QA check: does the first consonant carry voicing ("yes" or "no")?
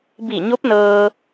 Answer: yes